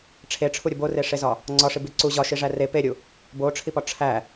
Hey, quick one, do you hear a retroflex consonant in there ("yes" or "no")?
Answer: yes